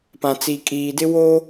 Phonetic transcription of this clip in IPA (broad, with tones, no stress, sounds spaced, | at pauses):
p ã˨ t͡s i˨ kʼ iː˨ d ɪ˦ w oː˦